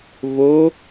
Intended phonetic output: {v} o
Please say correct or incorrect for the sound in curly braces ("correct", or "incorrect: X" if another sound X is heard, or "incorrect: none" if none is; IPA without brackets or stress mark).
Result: correct